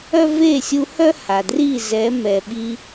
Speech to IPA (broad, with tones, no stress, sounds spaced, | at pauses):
œ˦ v e˦˨ sʲ u˧ h œ˦ h a˨ d r i˦˨ z ɛ˨˦ m ɛ˨ ɓ i˧